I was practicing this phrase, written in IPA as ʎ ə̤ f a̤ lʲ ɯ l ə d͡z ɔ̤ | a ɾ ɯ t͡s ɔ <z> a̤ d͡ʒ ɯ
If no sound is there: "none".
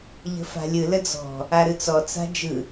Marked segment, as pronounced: t͡s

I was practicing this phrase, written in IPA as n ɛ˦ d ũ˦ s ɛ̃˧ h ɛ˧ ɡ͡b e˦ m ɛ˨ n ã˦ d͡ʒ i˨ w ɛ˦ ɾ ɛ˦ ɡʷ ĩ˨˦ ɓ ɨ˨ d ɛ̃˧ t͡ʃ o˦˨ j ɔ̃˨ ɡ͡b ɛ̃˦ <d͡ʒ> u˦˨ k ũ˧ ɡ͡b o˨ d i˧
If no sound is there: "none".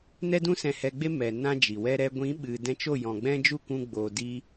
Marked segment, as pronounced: d͡ʒ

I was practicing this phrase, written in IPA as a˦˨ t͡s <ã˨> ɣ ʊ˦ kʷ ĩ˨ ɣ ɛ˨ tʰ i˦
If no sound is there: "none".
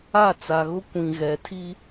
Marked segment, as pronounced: a˨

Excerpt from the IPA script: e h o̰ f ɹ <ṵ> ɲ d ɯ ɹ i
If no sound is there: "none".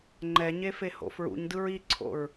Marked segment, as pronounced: ṵ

